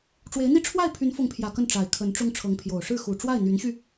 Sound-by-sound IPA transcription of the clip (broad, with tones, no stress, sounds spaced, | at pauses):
ʈ͡ʂ w e˧˥ ɪ̯ n̪ i˥˧ ʈ͡ʂʰ w a˥˩ ɪ̯ pʰ y˧˥ n f ʊ˧˥ ŋ pʰ j ä˨˩ k ə˥˩ n ʈ͡ʂ a˨˩ ɪ̯ kʰ ə˧˥ n ʈ͡ʂ ʊ˥ ŋ ʈ͡ʂʰ ɤ˧˥ ŋ pʰ j o˨˩ ʊ̯ ʂ ɻ̩˥˩ x u˨˩ ʈ͡ʂ w a˥˩ ɪ̯ n̪ y˧˥ n ɕ y˧